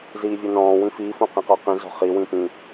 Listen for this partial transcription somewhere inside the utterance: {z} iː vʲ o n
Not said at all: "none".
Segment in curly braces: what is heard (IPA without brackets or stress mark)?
z